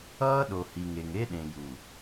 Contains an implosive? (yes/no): yes